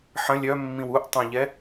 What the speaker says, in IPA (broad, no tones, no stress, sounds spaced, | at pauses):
ħ ɐ̃ lʲ œ mː ĩ w u ʔ tˤ œ̃ ʎ ɛ